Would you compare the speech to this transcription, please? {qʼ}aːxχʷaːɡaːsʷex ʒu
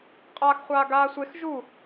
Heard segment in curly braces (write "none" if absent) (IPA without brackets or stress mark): qʼ